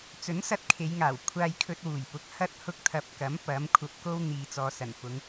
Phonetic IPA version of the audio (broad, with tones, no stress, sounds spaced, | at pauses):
t͡s ɵ˨˥ n s ɐ˧ t̚ kʰ e˨˧ j ŋ aː˨˩ w kʷʰ aː˧ j kʰ ɵ˧ t̚ w uː˨˩ j p ʊ˨˥ k̚ h ɐ˥ t̚ h ʊ˧ k̚ t̪ʰ ɐ˨ p̚ k ɐ˨˥ m p ɐ˨˥ m kʷʰ ɐ˧ p̚ k o˥ w n̪ iː˨ t͡s ɔː˨ s ɐ˨˩ n f ʊ˨˧ ŋ